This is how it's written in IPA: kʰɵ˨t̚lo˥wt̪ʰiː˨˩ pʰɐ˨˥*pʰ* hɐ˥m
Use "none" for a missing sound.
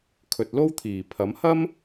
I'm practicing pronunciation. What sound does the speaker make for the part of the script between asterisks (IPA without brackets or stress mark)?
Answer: m